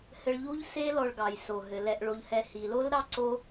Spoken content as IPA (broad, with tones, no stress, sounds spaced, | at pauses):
h ɘ˧ ɭ ʎ u˥ ʎ s e˥ l ɔ˧ ɭ ɡ ɑ˩ j s o˩ ɦ ɘ˩ l ɛ˧ ʔ ɭ o˧ ʎ h ɛ˧ h i˩ l o˥ l ɾ ɑ˥ ǀ o˥